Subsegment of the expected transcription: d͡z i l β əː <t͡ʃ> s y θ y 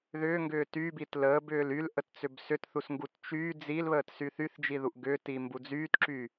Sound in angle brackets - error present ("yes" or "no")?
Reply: yes